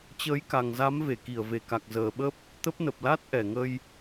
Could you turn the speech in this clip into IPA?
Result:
t͡ɕ əː˨˦ j k a˨˩ ŋ z a˨˦ m v e˧˩ k i˧˩ ə̯ v e˧˩ k a˨˩ k̚ z əː˨˩ ɓ ə˦˥ p̚ | t̪ ə˦˥ p̚ n ə˨˩ p̚ l a˦˥ t̚ ʔ ɛ˧˩ ŋ ə˧ j

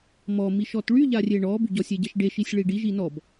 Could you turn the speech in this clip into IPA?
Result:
m ɔ m i ʃ ɔ t ɭ y ʎ a rʲ e ɳ ɔ b y ɟ ɔ sʲ e ɟ ɛ ʃ ɖ e ʃ i sʲ ɭ i ɖ i ʒ i n ɔ b

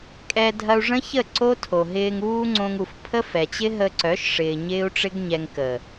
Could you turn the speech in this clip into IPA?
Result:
kʼ ɛ˧ dʱ ɐ˧ u̯ ʐ ə̃˦ ç ə˦˨ ǀ o˦ tʰ o˨ ɦ ɪː˧ ŋ uː˦ ŋ͡ǀ õ˧ ŋ u˨ f pʰ ə˦ f ɛ˨ t͡ɕ ɪ˦ ɦ ə˧ ǀ œ˨˦ ʃ ʂ ɪː˨ ɲ ɪː˦ u̯ ʈ͡ʂ ɪ˦ ɡ ɲ ɛ˧ ŋ k ə˨

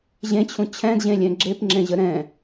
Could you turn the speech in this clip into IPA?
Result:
ʑ ẽ t͡ɕʰ ũ t͡ɕʰ ɛ̃ d ʑ ẽ lʲ ɛ̃ ɡ͡ǁ e p ŋ͡ǁ ẽ ʑ ə ɾ ɛ̃

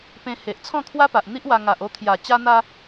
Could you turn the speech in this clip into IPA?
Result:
p ẽ˧ h e˨ ʔ t͡sʰ ɔ̃˥˧ kʰ w a˦ p a˨ ʔ n̪ i˦ ʔ w a˧ ŋ a˨ ʔ o˧ t̪ʰ j a˨˩ t͡ɕ a˧ n̪ a˧

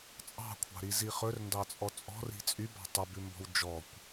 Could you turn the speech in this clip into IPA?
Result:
t͡sʼ ɑ̤ kʷʰ ɑ̤ ɾ i z i χ ɵ r n d ɑ t͡sʼ ɔ t͡sʼ ɔ̤ r i̤ t͡sʼ y b ɑ̤ tˤ u b ʉ m b ɔ̤ w d͡ʒ ɔ kʷ

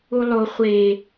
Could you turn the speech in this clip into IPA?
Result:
u lˠ o χʷ e

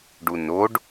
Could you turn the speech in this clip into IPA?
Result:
ɖ u n o ɖ

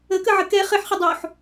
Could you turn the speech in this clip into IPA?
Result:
ə k ə ʕ ə k ɛ χ ɘ ħ χ ə dˤ o ħ

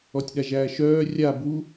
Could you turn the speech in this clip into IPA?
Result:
ɔ tʲ ɗ a ʒ æː ʃ œː rʲ a b u

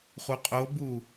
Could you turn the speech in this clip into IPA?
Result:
χ u qʼ o b uː

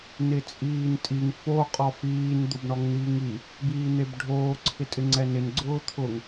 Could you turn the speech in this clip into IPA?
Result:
n ɪ t͡sʼ iː n tʼ i ŋ f o qʼ ɔ f iː n d̪ ʊ b ɳ ɔ ŋ n̪ iː ŋ i | b iː n̪ e b ɖʱ oː ǀʰ ɪ tʼ ɪ ŋ͡ǀ ɛ n ɪ n ɡ͡ǀ ʊː t̪ʰ ʊ ŋ

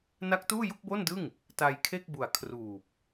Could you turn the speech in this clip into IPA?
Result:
n a˦˥ k̚ t uː˥˩ j u˥˩ k̚ b o˥˩ n d ɯ˥˩ ŋ | t a˧ j kʰ e˥˩ k̚ b u˨˩ a̯ kʰ r uː˨˩ p̚

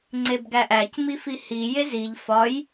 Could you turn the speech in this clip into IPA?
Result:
ŋ͡ǀ e b ɡ æ ʔ æ c m i f i h i j e z i ʎ f ɒ j

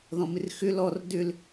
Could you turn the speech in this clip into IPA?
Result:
ð ɔ̃ m ɪ r x ʏ l ɔ r d ʏ l

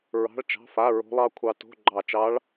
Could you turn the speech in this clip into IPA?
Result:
ɹ ɑ̤˧˥˧ ɭ t͡ʃ ɑ̤˧˥˧ f a˧˥˧ ɹ o̤˦˥ lˠ ɑ˦˥ kʷʰ ɑ˦˥ t o̤˧˥˧ ɡ͡ǃ ɑ˦˨ t͡ʃ ɑ˦˥ ɭ

